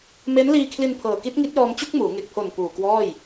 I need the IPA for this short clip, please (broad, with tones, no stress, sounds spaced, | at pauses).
m e˦˥ n l iː˧ kʰ l i˧ n pʰ ɤː˨˩ k i˦˥ t̚ ŋ i˦˥ t̚ j ɔː˧ m t͡ɕ u˥˩ k̚ m uː˩˦ ŋ e˨˩ k̚ pʰ o˨˩ n p uː˨˩ k w ɔː˥˩ j